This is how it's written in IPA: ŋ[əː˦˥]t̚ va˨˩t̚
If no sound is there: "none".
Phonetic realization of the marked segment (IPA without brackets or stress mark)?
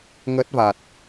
əː˦˥